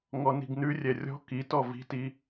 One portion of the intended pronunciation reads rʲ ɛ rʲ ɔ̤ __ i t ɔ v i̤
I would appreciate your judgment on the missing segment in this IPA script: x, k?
k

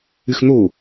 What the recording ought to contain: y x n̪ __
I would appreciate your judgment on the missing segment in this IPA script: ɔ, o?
o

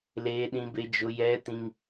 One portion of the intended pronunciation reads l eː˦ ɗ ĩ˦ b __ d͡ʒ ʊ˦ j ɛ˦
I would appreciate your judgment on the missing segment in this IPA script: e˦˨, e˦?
e˦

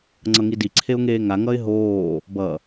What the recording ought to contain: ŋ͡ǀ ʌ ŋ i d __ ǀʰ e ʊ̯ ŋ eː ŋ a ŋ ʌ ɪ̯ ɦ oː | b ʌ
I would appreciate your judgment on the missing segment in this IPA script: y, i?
i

